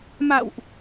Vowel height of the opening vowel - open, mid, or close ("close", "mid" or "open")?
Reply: open